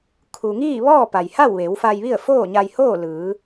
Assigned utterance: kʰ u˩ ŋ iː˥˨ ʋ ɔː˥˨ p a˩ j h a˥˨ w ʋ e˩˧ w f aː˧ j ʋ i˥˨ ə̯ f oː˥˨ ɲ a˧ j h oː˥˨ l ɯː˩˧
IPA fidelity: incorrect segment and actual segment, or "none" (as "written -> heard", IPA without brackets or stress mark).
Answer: aː˧ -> a˧